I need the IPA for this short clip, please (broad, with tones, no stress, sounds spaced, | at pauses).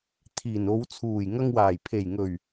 t̪ʰ iː˨˩ n o˨˧ w t͡sʰ uː˨˩ j ŋ ɐ˧ ŋ w aː˨˩ j pʰ e˨˩ j ŋ ɵ˨˩ ɥ